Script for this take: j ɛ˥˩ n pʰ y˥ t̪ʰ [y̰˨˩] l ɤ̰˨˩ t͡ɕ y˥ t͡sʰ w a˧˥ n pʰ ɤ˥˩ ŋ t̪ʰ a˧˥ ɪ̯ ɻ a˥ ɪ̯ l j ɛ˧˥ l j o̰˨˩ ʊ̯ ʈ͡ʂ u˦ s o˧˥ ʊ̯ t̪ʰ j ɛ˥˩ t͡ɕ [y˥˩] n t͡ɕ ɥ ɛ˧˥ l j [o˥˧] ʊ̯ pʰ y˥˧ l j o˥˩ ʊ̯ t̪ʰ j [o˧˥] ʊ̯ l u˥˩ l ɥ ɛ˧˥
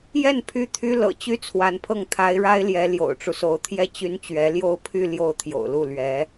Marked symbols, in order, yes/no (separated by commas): no, no, yes, no